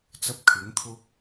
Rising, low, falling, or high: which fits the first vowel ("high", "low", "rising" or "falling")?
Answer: high